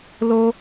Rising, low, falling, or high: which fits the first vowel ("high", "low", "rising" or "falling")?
high